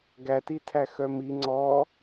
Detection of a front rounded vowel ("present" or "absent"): present